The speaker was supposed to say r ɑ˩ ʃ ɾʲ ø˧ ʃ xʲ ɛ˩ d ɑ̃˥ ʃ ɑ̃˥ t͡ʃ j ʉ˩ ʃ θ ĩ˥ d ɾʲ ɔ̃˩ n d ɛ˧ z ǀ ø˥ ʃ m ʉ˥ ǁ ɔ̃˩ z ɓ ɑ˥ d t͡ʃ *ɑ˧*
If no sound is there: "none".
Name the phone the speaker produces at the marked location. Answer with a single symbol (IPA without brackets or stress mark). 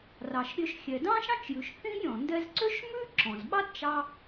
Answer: ɑ˧